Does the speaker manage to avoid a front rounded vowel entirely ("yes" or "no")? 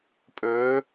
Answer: yes